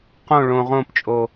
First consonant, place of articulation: uvular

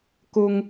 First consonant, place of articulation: velar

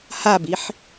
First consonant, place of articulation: glottal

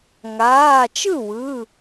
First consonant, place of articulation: velar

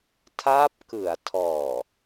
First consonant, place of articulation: alveolar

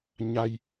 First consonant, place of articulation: palatal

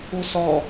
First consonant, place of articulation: alveolar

